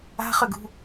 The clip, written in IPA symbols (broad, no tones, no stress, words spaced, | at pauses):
a̤χʏɡṳ